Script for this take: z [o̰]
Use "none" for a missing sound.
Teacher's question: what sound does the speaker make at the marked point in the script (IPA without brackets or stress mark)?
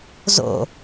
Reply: o̰